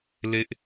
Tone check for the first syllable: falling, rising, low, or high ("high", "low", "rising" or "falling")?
high